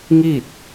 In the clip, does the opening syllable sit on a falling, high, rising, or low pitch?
falling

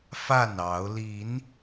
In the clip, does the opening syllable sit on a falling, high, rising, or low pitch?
falling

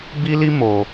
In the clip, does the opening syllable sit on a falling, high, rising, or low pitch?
high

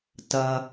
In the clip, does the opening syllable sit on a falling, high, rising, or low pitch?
low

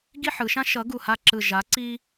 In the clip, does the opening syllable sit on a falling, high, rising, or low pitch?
falling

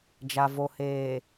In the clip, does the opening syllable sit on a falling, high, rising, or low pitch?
low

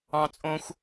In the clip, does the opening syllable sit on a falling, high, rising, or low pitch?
high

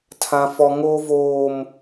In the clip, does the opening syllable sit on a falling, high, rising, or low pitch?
high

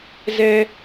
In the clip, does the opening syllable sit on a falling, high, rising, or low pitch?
high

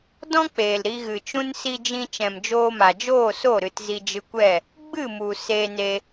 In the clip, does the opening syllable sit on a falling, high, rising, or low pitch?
high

